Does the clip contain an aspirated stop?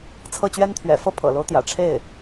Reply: yes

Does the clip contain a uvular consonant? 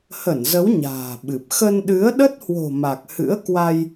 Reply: no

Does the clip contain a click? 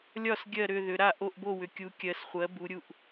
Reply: no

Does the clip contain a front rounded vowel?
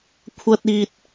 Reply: no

